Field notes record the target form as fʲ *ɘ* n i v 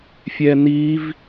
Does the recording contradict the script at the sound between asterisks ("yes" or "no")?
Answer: yes